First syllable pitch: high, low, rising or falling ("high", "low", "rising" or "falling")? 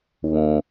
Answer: low